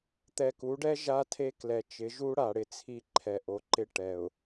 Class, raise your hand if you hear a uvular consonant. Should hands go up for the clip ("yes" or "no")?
no